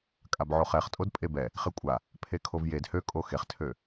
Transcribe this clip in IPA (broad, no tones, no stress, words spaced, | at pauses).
kʼabʕoχɛχ tʼodpʼebɛ | χekʷʼa | pʰekʰovjed høkʼo xeχtʰø